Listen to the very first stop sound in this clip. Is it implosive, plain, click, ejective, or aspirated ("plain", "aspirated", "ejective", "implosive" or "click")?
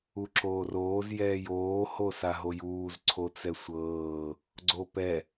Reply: click